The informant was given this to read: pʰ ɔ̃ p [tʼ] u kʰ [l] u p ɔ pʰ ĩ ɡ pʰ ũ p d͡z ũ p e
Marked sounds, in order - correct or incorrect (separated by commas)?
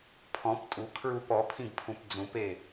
correct, incorrect